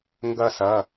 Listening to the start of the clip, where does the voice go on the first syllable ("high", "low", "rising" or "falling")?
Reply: falling